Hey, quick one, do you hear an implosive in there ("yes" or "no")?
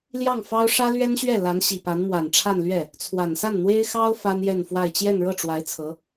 no